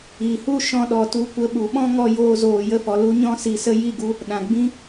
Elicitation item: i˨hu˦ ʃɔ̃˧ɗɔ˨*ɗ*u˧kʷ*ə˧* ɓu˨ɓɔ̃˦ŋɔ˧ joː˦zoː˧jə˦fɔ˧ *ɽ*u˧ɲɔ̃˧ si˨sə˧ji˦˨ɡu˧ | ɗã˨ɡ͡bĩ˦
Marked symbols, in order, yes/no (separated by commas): no, yes, no